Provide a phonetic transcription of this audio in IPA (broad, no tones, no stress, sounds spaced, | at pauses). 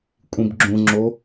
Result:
kʷʼ ĩ b ɡ͡ǁ ũ ŋ͡ǁ o